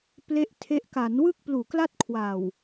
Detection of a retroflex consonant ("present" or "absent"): absent